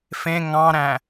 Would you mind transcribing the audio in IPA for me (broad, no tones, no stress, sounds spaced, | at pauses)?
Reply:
f ẽ ŋ ɑ̃ ɾ æ̃